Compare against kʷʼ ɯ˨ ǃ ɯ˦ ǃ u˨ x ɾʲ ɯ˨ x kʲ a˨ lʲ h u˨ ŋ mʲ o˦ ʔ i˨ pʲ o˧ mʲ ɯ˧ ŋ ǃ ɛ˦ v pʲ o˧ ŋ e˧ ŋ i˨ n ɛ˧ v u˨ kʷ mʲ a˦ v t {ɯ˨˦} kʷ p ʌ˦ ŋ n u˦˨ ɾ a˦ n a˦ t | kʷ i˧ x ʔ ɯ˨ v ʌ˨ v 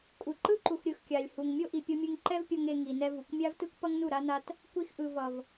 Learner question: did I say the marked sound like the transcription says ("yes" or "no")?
no